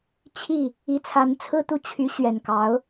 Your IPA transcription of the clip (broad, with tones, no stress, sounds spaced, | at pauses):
t͡ɕʰ i˥˩ | i˧˥ t͡sʰ a˧˥ n t͡sʰ ɹ̩˥˧ t̪ u˥˩ t͡ɕʰ y˧˥ ɕ ɥ ɛ˨˩ n k ɑ˧˥ ʊ̯